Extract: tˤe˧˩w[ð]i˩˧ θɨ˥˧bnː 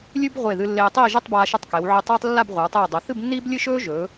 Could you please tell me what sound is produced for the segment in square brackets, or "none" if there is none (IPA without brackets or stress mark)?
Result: dˤ